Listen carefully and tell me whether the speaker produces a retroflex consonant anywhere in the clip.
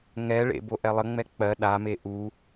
yes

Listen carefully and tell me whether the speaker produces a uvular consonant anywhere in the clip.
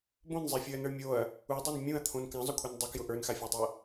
no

